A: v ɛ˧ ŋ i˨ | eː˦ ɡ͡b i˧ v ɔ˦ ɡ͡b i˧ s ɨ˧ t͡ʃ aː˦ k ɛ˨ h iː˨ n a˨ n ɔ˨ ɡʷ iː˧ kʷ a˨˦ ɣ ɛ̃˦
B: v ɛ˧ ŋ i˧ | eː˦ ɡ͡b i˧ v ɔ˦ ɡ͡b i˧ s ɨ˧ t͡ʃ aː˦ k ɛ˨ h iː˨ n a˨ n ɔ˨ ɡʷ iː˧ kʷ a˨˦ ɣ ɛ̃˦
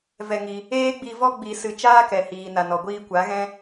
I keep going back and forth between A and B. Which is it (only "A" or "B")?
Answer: B